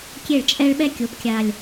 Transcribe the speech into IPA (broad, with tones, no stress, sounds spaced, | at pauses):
kʲ e˥˩ ɭ t͡ʃʼ ɛ˥ ɭ ɓ ɛ˥ kʲ o˩˥ p kʲ a˨˩ lʲ